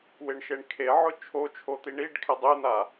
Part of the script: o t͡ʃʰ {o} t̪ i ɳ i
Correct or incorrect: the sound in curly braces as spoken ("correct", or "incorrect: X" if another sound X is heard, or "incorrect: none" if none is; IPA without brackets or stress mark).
correct